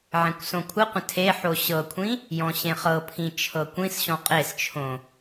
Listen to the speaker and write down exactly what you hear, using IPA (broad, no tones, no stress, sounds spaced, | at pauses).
ʕ ẽ kʷ s õ kʷʰ ə qʷ ə̃ tʰ e ħ o ɕ ɤ kʷʰ ĩ | j ɔ̃ ɕ ẽ χ ɤ pʰ ĩ t͡ʃʰ ɤ kʷ ĩ s ɕ ɔ̃ qʼ e s t͡ʃʰ õ